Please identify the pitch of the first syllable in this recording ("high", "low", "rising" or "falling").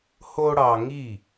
high